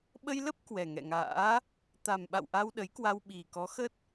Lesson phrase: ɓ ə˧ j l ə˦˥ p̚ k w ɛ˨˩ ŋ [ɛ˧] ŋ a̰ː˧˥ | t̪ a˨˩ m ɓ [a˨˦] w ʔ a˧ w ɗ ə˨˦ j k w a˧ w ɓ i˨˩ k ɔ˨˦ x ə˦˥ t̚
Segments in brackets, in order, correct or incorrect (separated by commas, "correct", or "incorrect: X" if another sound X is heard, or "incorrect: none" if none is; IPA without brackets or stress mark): incorrect: ɛ̰˧˨, incorrect: a̰˧˨